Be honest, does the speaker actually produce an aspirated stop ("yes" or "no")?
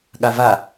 no